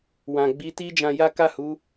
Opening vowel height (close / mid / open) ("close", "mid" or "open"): open